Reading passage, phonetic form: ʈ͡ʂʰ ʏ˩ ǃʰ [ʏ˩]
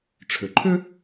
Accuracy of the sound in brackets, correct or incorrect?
incorrect